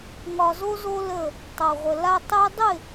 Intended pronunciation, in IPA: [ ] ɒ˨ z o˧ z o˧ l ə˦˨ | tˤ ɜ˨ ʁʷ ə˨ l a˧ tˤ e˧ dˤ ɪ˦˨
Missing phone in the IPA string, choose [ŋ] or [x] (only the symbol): ŋ